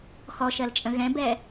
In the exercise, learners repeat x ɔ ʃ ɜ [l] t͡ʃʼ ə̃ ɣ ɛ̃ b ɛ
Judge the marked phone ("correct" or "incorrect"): correct